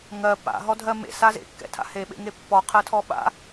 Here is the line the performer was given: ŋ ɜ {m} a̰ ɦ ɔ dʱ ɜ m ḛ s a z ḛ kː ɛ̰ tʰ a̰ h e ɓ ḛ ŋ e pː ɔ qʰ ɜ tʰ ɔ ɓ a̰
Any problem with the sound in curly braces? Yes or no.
yes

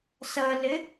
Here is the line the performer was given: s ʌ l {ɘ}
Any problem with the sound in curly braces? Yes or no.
no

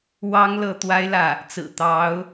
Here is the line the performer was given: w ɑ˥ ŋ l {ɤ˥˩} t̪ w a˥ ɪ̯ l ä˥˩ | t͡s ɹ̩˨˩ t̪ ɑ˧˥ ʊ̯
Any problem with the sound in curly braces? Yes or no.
no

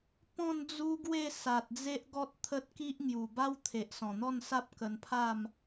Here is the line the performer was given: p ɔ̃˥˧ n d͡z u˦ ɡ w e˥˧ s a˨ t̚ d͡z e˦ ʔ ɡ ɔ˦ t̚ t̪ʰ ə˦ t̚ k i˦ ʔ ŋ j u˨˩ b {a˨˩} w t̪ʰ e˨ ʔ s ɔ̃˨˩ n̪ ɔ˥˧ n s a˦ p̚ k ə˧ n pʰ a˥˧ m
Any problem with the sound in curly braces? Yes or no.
yes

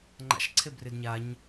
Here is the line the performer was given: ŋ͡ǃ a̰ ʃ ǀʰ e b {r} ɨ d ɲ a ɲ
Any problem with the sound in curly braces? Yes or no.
no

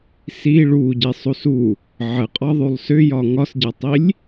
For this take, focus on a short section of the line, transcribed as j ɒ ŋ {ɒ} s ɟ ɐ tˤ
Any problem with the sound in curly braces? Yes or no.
no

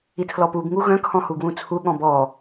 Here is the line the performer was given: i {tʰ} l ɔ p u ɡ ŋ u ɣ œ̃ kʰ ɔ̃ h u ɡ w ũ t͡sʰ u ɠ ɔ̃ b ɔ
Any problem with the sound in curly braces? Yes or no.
no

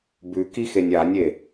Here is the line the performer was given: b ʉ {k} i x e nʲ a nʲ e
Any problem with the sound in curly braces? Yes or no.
no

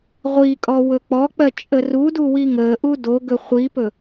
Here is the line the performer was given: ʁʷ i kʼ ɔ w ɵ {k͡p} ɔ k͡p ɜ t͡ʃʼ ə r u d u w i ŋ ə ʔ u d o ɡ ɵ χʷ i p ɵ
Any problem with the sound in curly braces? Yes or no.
no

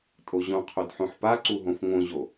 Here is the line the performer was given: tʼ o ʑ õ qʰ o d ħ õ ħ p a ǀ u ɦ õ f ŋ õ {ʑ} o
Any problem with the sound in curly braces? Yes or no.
no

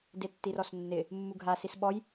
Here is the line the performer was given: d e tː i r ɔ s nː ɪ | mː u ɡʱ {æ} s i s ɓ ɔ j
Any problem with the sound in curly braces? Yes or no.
yes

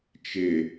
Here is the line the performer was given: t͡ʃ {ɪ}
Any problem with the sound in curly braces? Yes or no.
no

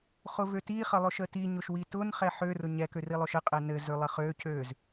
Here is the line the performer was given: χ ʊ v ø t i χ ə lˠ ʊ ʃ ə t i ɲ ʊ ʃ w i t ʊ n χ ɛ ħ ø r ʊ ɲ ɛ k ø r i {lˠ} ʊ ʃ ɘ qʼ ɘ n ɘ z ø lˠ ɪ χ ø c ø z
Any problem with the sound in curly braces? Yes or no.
no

